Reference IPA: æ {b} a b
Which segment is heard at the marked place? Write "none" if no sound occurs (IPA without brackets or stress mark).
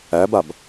b